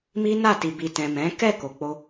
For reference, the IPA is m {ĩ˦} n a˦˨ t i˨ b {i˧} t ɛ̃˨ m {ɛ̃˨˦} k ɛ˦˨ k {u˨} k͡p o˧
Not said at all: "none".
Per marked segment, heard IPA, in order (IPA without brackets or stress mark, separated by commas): i˦, i˨, ɛ̃˨˦, o˨